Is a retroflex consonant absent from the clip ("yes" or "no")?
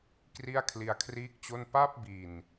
yes